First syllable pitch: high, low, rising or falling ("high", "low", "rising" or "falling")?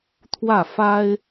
falling